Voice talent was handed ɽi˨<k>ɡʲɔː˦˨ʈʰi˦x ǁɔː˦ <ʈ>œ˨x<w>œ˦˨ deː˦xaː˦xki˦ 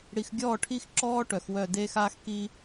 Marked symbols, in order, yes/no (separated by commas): no, yes, yes